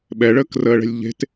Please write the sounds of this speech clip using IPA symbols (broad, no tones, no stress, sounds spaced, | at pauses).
ɓ ɛ ɭ əː k r əː ɭ ɛ̤ lʲ ʎ e̤ t